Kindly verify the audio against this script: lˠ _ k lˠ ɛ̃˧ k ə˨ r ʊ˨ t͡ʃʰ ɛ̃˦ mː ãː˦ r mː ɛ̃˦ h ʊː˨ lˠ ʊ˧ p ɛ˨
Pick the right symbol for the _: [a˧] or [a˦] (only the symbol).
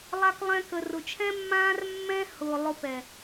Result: a˧